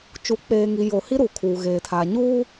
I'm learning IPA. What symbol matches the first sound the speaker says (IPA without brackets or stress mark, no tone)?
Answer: t͡ʃ